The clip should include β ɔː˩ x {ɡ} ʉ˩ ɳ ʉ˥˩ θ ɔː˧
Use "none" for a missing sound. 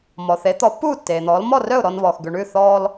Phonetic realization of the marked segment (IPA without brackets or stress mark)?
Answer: ɡ